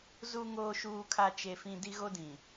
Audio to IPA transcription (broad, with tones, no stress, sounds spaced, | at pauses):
z u˦ ŋ oː˦ ʃ uː˦ kʰ a˦ t͡ʃ e˦ f ĩ˦ d i˦ ɣ o˦ d ĩ˨